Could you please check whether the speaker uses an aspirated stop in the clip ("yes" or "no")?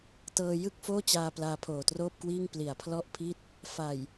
yes